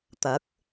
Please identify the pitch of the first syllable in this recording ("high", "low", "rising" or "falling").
rising